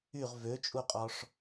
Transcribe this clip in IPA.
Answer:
y ʁ v ø t͡ʃʼ u qʼ ɔ ʂ

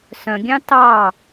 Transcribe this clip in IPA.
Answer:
s œ̃ ɡʲ ɑ̃ t ɑ

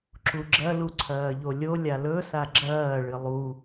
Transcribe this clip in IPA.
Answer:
ǁ u ɡ͡ǁ ɐ l u ǀʰ ɐː ʎ o lʲ o lʲ a l ɵ s a ɡ͡ǁ ɐː ɭ ɨ lˠ u

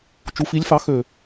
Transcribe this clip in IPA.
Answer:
t͡ʃ u˨˦ f i˨˦ lʲ f ɑ˨˦ x ø˨˩

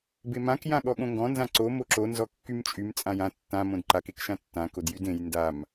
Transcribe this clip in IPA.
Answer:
b e m ã k j ã ɠ ɔ ɠ õ ŋ ɡ ɔ̃ n z ã ǀ o m o ǁ o n z ɔ kː y m t͡ʃʼ y m t͡sʼ ã j ã tː ã m õ d ǃ a k e k ʃ ã tː ã k o d j y d ẽ j n d a m

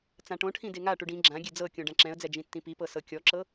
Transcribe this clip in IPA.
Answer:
t͡s ã ʈ õ ʈʰ ĩ d e ŋ a ʈ u ɖ ĩ ɡ͡ǁ ã ɡʲ e d͡z ɤ kʲ õ ɖ ã ǁ ɛ̃ ə̯ d͡z ɛ d͡ʒ ĩ tː ĩ p i p ɤ s ɤ kʲ ɔ ǁ ɤ

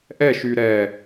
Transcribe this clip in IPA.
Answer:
ʔ ɛ ʃ y ɾ ɛ

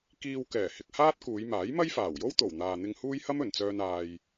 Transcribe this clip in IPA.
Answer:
k iː˧ w k ɛː˨˩ h ɪ˧ k̚ h aː˥ t̚ k uː˨˧ j m aː˨˥ j m ɐ˥ j f aː˨˩ w j o˥ w t̪ o˨˩ w n̪ aː˨ n̪ ɪ˧ ŋ h uː˥ j h ɐ˥ m ɵ˨˩ n t͡s œː˧ n aː˧ j

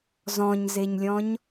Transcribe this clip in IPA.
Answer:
z ɔ̃ ɲ z e ɲ lʲ ɔ̃ ɲ

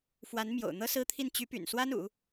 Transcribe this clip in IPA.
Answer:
f w a˧˥ n m j o̰˨˩ ʊ̯ n̪ ɤ˥ s ɹ̩˥ t̪ʰ i˥˩ n t͡ɕ y˧˥ p y̰˨˩ n s w a˥ n ṵ˨˩˦

